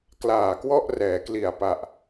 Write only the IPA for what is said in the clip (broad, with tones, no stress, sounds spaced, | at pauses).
k l aː˨˩ k w ɔ˥˩ ʔ r ɛː˩˦ k l i˨˩ a̯ p a˨˩ ʔ